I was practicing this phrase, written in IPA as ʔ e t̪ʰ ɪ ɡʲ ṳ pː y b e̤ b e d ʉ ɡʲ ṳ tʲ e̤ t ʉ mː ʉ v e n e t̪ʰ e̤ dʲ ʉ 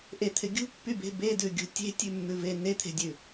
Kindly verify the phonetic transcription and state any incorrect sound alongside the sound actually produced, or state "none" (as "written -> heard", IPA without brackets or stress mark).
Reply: t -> tʲ